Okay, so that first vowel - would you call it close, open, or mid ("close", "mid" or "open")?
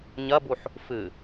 open